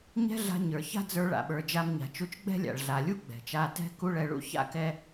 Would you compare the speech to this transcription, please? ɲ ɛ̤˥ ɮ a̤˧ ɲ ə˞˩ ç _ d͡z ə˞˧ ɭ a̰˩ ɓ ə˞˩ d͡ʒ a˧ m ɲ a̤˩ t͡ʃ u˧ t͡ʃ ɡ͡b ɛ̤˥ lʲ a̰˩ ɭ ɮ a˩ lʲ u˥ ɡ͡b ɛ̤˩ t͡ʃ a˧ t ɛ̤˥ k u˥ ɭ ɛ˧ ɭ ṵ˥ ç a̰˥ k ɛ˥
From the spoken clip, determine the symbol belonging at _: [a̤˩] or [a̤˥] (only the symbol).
a̤˥